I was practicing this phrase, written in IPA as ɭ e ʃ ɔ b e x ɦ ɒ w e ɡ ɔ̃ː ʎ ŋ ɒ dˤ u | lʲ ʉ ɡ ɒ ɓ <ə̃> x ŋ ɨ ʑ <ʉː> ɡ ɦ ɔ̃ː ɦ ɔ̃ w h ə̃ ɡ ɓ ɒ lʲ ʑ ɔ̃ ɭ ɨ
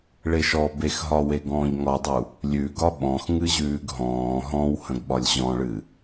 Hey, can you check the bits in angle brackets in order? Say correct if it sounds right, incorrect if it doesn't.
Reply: incorrect: ɔ̃, correct

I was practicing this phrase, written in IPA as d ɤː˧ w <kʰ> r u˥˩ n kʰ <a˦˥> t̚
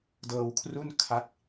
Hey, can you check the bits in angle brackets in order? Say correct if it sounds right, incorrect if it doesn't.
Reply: correct, correct

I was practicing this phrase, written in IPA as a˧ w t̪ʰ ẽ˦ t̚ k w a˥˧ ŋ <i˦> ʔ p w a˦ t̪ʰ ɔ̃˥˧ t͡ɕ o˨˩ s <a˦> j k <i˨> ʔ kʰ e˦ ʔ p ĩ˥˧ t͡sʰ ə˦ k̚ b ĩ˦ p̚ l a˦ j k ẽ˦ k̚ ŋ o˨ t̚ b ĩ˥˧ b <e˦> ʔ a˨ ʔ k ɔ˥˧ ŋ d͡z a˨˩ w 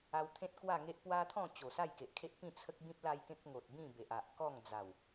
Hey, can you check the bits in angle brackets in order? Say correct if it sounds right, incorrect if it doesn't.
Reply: incorrect: e˦, incorrect: a˥˧, incorrect: e˨, incorrect: e˨

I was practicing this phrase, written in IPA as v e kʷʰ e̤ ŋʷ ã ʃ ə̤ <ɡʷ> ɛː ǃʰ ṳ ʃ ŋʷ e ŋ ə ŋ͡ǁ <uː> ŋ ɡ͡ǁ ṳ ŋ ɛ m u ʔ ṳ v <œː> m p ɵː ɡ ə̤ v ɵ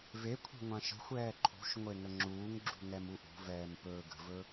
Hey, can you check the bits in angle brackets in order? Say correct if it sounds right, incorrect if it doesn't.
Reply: incorrect: xʷ, correct, incorrect: ɛː

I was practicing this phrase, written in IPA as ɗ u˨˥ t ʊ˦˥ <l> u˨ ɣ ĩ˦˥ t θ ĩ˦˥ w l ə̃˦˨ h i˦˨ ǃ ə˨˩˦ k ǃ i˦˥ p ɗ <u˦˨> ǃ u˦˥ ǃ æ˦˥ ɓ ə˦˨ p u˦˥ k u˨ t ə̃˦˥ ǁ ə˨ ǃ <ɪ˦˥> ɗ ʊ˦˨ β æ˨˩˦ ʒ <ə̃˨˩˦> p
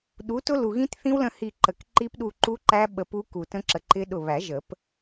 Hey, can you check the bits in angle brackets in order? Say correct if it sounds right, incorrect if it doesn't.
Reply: correct, correct, correct, incorrect: ə˨˩˦

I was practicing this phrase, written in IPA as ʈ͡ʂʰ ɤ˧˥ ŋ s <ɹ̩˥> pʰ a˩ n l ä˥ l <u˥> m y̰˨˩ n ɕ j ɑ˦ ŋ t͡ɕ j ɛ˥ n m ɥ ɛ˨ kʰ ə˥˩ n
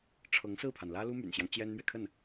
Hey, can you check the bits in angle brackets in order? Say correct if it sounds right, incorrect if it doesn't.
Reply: incorrect: ɹ̩˥˩, correct

